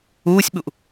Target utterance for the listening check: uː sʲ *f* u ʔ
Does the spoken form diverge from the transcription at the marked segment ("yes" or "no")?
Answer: yes